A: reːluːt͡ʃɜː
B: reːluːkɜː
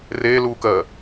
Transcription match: B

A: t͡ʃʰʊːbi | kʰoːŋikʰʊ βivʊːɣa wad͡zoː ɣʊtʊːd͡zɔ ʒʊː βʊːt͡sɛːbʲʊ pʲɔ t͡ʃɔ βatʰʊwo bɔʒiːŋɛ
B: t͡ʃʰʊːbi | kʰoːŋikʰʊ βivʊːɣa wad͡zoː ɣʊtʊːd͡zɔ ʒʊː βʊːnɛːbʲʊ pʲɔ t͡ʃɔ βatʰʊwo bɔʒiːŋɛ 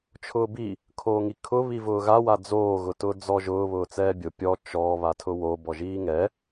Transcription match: A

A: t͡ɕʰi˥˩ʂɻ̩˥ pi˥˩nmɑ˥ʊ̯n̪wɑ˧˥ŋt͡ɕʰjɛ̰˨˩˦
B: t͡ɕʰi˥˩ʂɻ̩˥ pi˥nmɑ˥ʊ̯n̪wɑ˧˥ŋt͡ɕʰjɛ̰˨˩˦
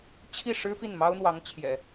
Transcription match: A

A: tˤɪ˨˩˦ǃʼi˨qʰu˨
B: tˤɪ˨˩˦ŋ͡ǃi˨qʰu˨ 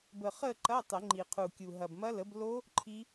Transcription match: B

